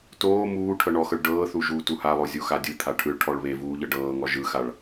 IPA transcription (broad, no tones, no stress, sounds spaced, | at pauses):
t oː m uː ʈʰ ɤ ɳ ɔ x ɤ ɭ ɖ ɤː θ u ʒ uː t u h a lˠ o zʲ o x a dʲ ɯ t̪ʰ a ʈʰ ɯ ɭ ʈʰ ɔ ɭ β e v uː ʎ ɤ ɖ ɤː ŋ ɔ ʒ ɯ x a ɭ